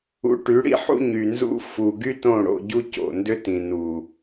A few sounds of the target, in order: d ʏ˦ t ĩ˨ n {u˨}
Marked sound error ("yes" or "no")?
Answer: no